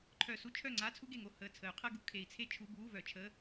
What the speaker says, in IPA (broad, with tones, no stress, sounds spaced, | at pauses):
ǃʰ œ˧˩ s u˥ t͡ʃʰ œ˥˩ ŋ͡ǀ a˧˥˧ t͡sʰ u˥ ɡ e˧˩ ŋ o˥˩ h əː˧˩ t͡sʰ ə˨˩˦ y̯ qʰ əː˥ ɡ u˨˩˦ kʰ e˨˩˦ i̯ t͡sʰ e˥ t͡ʃʰ u˧˥˧ b uː˧˥˧ v œ˨˩˦ t͡ʃʰ əː˧˥˧